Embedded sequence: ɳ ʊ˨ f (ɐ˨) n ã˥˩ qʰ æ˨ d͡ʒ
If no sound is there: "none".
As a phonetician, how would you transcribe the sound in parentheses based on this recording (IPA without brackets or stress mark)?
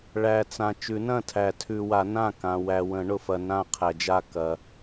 ɐ˨